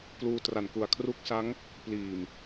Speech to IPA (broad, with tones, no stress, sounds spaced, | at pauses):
k l uː˧ t r a˨˩ n k u˨˩ a̯ kʰ r u˦˥ k̚ s a˦˥ ŋ | p l iː˨˩ m